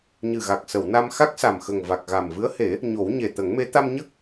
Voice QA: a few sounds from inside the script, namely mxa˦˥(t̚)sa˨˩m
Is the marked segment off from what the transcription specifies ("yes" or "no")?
yes